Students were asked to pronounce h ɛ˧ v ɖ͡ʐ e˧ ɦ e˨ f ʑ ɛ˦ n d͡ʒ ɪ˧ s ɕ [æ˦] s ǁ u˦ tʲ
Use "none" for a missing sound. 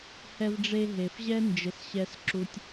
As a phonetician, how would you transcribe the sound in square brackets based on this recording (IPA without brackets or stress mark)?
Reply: ɛ˦